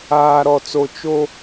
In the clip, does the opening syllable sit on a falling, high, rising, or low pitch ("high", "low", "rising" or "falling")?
high